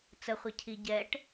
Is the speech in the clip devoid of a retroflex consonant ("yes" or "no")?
no